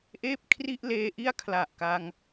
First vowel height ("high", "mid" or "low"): mid